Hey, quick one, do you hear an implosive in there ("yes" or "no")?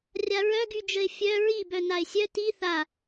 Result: no